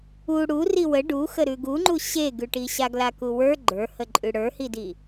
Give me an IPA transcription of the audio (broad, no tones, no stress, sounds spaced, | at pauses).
u ɽ u r i w ə ɖ u x ə ɾ ʉ ɡ u ŋ͡ǃ u ɕ e ɡ ʉ ʈ i ɕ a ɡ l a k u w ə˞ ɡ͡ǃ ə˞ h ə ǃʼ ʉ ɽ ə˞ h i d i